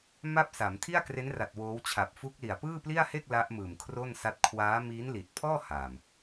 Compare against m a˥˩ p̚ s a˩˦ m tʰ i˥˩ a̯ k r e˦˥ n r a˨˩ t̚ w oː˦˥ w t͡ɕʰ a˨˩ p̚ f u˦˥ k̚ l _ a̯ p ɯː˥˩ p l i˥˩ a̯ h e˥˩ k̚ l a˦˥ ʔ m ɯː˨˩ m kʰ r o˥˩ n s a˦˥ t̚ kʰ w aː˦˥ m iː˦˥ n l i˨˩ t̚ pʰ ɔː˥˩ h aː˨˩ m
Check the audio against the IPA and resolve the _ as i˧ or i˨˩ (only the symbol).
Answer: i˨˩